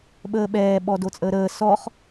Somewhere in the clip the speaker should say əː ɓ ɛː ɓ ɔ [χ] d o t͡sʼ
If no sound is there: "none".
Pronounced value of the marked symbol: none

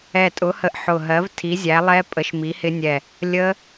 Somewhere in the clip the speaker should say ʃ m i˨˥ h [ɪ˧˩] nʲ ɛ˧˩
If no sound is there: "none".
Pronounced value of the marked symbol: ɪ˦˥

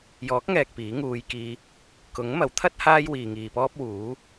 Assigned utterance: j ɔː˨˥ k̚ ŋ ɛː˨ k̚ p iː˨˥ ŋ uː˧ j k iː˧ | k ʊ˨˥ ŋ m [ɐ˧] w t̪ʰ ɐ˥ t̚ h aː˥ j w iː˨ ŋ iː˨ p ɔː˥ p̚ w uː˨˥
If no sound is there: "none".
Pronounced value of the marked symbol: ɐ˨˥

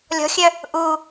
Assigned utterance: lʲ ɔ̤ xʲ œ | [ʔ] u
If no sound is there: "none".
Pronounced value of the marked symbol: ʔ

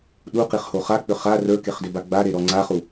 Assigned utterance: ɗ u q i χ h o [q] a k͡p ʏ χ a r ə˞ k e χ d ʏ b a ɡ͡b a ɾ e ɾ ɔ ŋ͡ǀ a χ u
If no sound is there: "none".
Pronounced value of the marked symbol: χ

